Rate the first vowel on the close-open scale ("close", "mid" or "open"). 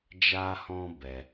open